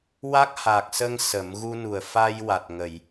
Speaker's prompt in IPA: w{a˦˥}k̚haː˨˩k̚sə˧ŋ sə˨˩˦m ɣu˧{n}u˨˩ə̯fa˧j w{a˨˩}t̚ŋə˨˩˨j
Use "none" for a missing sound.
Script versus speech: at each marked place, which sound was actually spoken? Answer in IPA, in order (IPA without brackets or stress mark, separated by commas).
a˦˥, n, a˨˩